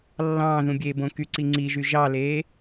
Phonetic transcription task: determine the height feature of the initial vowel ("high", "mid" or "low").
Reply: low